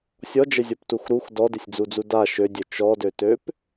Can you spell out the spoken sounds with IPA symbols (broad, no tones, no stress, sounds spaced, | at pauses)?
sʲ ɔ d͡ʒ ə zʲ ɔ p t u x ɾ u x d ɔ d ɪ sʲ d͡z u d͡z u d a ʃ ø dʲ ø t͡ʃ ɔ d ø t ø p